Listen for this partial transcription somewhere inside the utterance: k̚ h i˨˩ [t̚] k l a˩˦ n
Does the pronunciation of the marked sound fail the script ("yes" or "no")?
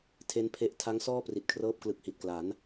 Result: no